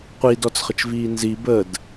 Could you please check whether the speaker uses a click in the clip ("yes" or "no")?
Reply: no